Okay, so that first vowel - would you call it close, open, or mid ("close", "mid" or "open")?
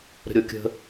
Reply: mid